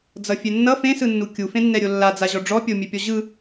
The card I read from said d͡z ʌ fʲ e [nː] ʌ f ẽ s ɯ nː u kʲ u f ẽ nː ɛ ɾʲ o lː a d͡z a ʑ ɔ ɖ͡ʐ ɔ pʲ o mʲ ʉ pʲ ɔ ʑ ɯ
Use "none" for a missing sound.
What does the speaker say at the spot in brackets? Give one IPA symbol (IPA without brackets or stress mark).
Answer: nː